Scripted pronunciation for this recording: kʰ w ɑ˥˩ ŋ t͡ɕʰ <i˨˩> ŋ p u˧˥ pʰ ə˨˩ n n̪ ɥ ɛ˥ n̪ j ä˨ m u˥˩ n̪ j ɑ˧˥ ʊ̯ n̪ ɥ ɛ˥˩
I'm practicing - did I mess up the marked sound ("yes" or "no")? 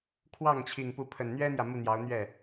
no